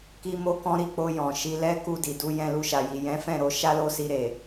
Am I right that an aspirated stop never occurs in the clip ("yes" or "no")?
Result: yes